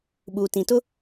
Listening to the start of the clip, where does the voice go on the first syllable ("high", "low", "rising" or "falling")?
low